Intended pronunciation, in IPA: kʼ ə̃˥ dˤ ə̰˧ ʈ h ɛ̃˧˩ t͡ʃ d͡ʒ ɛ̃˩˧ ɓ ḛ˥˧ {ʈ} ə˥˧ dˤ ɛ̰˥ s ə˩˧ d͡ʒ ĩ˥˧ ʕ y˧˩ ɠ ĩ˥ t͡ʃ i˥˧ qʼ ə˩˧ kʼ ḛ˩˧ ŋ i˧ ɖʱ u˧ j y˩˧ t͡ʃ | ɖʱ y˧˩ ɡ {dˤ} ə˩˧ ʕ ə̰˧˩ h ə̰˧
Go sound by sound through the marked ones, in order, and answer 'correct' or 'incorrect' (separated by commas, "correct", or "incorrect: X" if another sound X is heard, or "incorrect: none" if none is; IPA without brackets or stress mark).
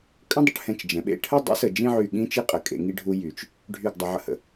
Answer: incorrect: ʈʰ, correct